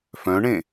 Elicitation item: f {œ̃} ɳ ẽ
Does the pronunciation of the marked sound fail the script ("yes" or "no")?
no